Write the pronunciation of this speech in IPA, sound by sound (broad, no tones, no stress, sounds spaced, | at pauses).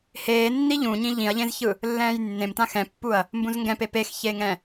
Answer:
h eː nː i ʎ ũ ɲ ĩ ʎ ĩ ɐ̯ ʎ ẽ z ç ɯ | lː ɛ̃ː j nː ẽ m t ã x ɛ̃ pː u ɐ̯ | m b ũ z ŋ ɡ ɛ̃ p e p e x ç e ŋ ɛ̃